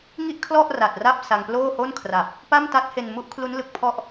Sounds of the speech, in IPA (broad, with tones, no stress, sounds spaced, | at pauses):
ŋ i˥˩ ʔ kʰ l ɔ˥˩ ʔ r a˨˩ t̚ r a˥˩ p̚ s a˧ ŋ p l oː˥˩ h o˥˩ n kʰ r a˨˩ p̚ | p a˥˩ m t a˦˥ t̚ h e˧ n m u˦˥ ʔ kʰ l u˦˥ n l ɯ˨˩ k̚ pʰ ɔ˦˥ ʔ